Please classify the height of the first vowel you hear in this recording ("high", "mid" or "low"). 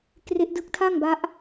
mid